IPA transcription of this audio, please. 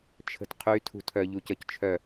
t͡ʃʰ ə̤ t qʰ y tʰ ṳ tʰ œ ʎ u c ə c t͡ʃʰ œ

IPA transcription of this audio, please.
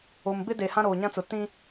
o˨ m b ɪ˦ d e˨ h ã˦ ɾ oː˨ ɲ ã˦ t͡s ʊ˨ t ĩ˦

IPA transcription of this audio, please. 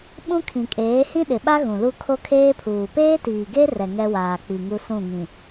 ɓ ũ˦ kʰ ĩ˨ kʼ eː˨˦ h ĩ˦ ɗ ɪ˨ ɓ a˦ ɣ ũ˨ l u˦ kʰ o˦ kʰ eː˦ pʰ uː˨ p eː˦ t iː˨ ɡ e˦ r ɛ˨ ŋ ɛ˦ w aː˨ k͡p i˨ ŋ u˦ s ũ˦˨ ŋ ĩ˨

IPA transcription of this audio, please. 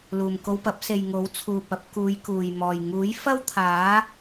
l uː˨˩ m k o˧ w p ɐ˨˥ p̚ s e˨ j ŋ o˨˥ w t͡sʰ uː˨ p̚ ɐ˨˥ p̚ k uː˨˧ j k uː˨˩ j m ɔː˨˩ j ŋ uː˨˥ j f ɐ˥ w t̪ʰ aː˨˥

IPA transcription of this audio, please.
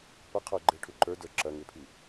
p ɐ qʰ ə˞ ɡ͡ǃ e ʈʰ u ǃ ə˞ d ə˞ ǁ ɐ ŋ e pʰ i

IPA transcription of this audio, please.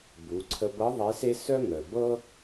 b u˩˧ ǀʰ ə˧ b ɤ˧˥ ðˤ e˧˥ s e˥ s œ˥ ŋ œ˩ b ɤ˥

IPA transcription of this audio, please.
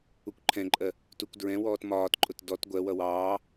u kʷ ǃʰ ɛ̃ ǃʼ ɜ | t u kʷ d ɹ ɛ̃ w ɔː t m ɒː t ǃʼ ʊ t d ɔ t ɡʷ ɜ w ʌ w ɑː

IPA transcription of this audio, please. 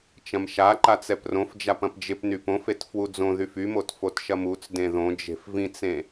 t͡ʃ ɐ̃ m ʃ a ǃ a t͡s ɛ p r õ f d͡ʒ a p ɐ̃ p d͡ʒ ɪ p n y p õ f e t f w u d͡z õ ð y f y m o t f o t ʃ ɐ m u t͡s d ẽ ð õ d͡ʒ e̤ f v ĩ t͡s ẽ

